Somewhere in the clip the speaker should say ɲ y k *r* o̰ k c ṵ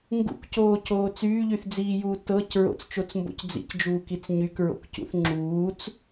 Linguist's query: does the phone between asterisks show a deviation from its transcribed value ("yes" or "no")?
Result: yes